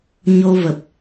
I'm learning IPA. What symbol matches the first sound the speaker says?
ɲ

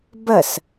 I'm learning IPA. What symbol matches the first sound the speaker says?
b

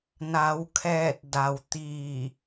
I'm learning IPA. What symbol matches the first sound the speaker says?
n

